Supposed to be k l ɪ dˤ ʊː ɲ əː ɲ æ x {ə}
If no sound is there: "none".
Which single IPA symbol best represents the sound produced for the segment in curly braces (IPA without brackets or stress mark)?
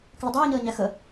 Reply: ə